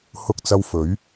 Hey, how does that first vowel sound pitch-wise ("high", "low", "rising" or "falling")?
high